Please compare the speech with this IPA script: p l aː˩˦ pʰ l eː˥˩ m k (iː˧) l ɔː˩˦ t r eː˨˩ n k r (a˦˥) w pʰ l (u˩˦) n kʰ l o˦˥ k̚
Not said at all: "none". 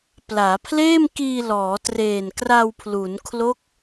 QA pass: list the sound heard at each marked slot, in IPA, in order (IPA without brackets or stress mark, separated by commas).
iː˧, a˧, u˩˦